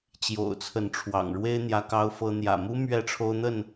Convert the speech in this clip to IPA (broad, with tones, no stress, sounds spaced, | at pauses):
t͡ɕ j o̰˨˩ ʊ̯ t͡sʰ ə˨˦ n ʈ͡ʂʰ w ɑ̰˨˩ ŋ ɻ w e˦ ɪ̯ n̪ j ä˦ k ɑ˦ ʊ̯ f ɤ˦ n̪ j ä̰˨˩ m u˦ m ɥ ɛ˥˨ ʈ͡ʂʰ o˦ ʊ̯ n̪ ə˥˨ n